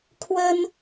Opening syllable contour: high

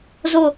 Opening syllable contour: low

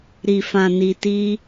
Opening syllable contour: low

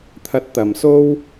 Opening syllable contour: rising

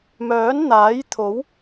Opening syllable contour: rising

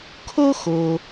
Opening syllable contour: high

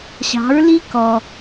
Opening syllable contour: rising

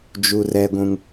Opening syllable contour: high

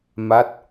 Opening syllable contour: falling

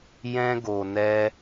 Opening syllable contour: high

